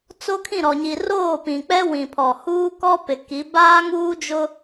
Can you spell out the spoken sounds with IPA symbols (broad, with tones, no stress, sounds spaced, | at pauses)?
t͡s o˦ kʰ ĩ˦˨ ɾ ɔ˨ ɲ i˨ r oː˦˨ p ĩ˨ k͡p ɛ˦ w ĩ˨ pʰ ɔ˨ h uː˦ k ɔ˦ p ɪ˨ k i˨˦ b aː˦ ŋ uː˦ d͡ʒ ʊ˦